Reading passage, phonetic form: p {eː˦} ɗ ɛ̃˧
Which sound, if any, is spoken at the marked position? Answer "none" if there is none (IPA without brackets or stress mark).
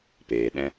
eː˨